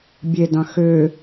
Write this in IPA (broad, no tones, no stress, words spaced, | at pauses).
bʲedɑ̃ xø